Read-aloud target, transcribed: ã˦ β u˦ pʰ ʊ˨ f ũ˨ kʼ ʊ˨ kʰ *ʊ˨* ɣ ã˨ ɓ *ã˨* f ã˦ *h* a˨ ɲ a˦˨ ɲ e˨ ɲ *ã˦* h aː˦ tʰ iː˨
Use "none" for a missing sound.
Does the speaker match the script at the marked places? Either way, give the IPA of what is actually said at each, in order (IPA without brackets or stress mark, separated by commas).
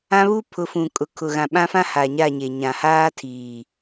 ʊ˨, ã˦, h, ã˨